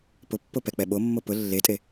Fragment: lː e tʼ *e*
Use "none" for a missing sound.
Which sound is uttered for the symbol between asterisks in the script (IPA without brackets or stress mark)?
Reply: e